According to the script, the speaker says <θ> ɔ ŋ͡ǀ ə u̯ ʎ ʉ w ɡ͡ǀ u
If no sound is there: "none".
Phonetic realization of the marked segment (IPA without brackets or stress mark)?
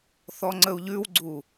θ